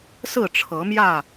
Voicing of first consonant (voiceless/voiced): voiceless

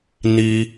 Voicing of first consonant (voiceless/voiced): voiced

